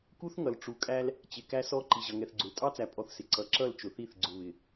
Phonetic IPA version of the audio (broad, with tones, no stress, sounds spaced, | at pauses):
k u˦ θ ŋ ʌ˨ l ʈ͡ʂ u˨ kʼ æ˦ l | t͡ɕ ɪ˨ k æ˦ s ɔ˦ ǃ i˨ ʑ ʌ˨ ŋ ɛ˨ θ ɡ͡ǀ ʊ˨ l tʼ ɑ˦ t͡s æ˨ pʼ ɔ˦ θ s ɪ˨ ǀ ʌ˨ ǁ ʌ˦˨ l t͡ʃ ʊ˨ θ i˦˨ θ ɡ͡ǀ ʊ˨ β ɪ˨